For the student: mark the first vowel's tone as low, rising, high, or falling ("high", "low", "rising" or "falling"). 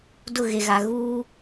falling